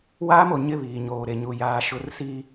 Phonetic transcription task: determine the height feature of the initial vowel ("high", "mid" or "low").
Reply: low